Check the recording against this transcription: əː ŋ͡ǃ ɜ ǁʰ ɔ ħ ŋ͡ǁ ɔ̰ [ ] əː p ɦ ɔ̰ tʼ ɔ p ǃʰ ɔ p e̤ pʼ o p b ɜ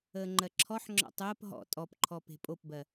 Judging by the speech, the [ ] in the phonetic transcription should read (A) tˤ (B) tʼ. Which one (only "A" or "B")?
A